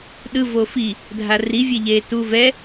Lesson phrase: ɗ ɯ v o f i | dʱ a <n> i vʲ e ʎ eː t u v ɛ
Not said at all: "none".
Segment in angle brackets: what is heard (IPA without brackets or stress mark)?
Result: r